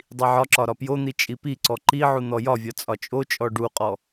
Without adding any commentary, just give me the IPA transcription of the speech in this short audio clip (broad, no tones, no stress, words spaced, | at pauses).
dˤiʕɒǁɒ ɾɒpjon̪i t͡ʃʼipiǀɔ ǃi ʕun̪ɔjɒvʲɒ t͡sʼɒt͡ʃʼot͡ʃʼɔ ɖuqʼɔ